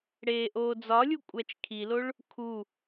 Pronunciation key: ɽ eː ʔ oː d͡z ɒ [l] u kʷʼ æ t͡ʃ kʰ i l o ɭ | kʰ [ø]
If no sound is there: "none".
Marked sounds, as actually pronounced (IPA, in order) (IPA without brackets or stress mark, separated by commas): lʲ, u